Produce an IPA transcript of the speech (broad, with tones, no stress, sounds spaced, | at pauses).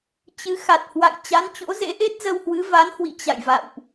t͡ɕ ɨ˨˦ x a˨˩ t̚ h w a̰˧˨ j t͡ɕ a˨˦ n t͡ɕ o̰˧˥ z ḛ˧˥ ʔ e˦˥ t̚ z ə˧ w h w ɨ˨˦ v a˨˦ n h w ḭ˧˨ t͡ɕ a̰˧˨ j v a̰˧˨ w ʔ